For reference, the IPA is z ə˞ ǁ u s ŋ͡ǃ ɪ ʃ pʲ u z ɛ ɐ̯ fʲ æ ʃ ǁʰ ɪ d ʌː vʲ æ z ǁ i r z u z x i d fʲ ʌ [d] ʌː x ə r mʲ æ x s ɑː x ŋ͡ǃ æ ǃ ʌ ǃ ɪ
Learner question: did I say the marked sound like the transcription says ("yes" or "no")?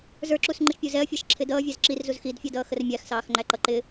yes